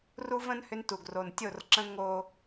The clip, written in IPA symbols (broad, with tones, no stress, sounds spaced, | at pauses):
r u˦ v ə̃˦ n h ʏ˦ n t u˨ ɡ r o˨ n tʲ o˦˨ r ǁ ə̃˦ ŋ o˦